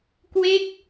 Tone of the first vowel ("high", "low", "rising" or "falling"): falling